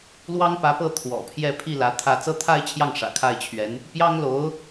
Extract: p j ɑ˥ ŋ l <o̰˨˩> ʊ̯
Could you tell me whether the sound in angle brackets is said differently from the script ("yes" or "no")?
yes